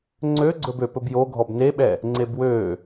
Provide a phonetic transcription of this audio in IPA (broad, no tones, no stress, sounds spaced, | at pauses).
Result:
ŋ͡ǀ ø ɡ͡ǀ ɵ b ø p ɵ b j o ɡʱ ɔ b n e ɓ ɛ | ŋ͡ǀ e b w ø